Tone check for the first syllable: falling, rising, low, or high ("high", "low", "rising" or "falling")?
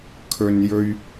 high